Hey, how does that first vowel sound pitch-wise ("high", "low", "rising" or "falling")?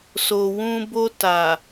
low